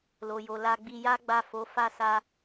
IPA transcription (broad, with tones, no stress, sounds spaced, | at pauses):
l o˨ j o˨ l a˧ ɡ͡b i˧ j a˦ ɡ͡b a˦˨ f o˨˦ f a˦˨ s a˧